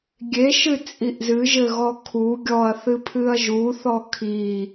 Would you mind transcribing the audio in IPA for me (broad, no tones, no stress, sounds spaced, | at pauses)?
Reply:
ɡʲ e ʃ ɨ t͡sʼ i ʔ z ɨ ʒ ɘ ɣ ɔ kʰ u ɡʲ ɔ ɐ̯ θ ɨ pʰ ɨ ɐ̯ ʒ u θ ɔ kʰ i